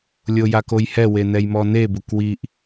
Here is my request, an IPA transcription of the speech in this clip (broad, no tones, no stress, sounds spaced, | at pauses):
lʲ o j a k o j h ɛ w e n ɛ j m ɔ n e b ʊ k w i ʔ